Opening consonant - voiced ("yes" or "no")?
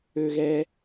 yes